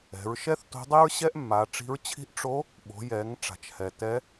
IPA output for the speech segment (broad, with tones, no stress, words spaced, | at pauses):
ɛ̤˩˧ɹ ʃɛ˥θto̤˧˥dˤe˥ɹ ɕɛ˥ʔmːa˩˧ʈ͡ʂi̤˧˥ɹt͡ɕʰi̤˥ʔ ʈ͡ʂo˧˥ | ɓo̤˩˧jɛ˩˧ŋ ʈ͡ʂa̤˩t͡ʃhɛ˩ tɛ˧˥